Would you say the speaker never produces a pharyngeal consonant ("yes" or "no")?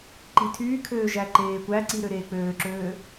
yes